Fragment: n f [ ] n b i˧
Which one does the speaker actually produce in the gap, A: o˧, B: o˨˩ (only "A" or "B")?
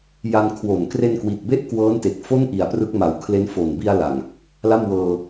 B